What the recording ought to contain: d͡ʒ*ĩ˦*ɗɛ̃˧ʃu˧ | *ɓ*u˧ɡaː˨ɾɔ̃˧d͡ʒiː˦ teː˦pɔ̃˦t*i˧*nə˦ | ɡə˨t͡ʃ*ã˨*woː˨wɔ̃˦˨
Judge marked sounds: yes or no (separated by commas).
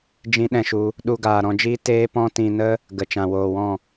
yes, no, no, yes